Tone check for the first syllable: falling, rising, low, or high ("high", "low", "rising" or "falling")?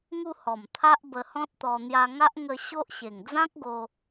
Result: falling